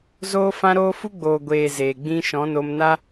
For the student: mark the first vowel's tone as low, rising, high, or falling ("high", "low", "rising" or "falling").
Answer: high